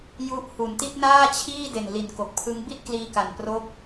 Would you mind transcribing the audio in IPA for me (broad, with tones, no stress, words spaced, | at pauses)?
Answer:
ju˦˥ʔhu˩˦n ti˥˩t̚naː˥˩t͡ɕʰiː˥˩de˨˩n li˩˦nko˨˩k̚pʰɯ˦˥ŋ bi˥˩t̚kliː˧ka˨˩n pro˥˩k̚